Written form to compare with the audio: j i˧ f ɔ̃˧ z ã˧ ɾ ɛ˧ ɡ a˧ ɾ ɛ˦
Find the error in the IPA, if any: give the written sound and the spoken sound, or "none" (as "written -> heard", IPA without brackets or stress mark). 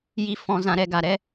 none